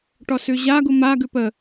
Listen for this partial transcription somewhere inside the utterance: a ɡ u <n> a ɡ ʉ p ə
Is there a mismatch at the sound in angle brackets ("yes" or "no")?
yes